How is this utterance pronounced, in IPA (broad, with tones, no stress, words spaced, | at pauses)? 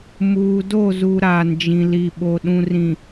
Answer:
muː˨ do˦˨zu˨ ɾaː˨nd͡ʒĩ˨li˨ɓo˨ ɗũ˨rĩ˨